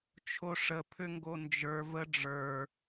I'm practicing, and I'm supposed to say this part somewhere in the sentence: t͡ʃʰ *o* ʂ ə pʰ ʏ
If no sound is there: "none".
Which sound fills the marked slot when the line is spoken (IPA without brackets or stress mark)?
o